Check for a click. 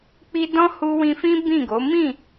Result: absent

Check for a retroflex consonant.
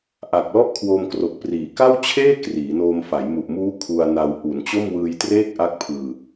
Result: absent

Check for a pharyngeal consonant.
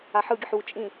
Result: present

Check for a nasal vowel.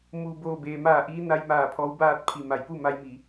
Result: absent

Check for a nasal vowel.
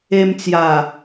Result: absent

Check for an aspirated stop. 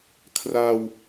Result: present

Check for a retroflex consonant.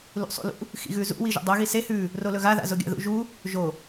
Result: absent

